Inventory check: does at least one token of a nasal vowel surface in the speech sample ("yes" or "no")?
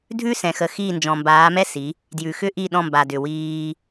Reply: yes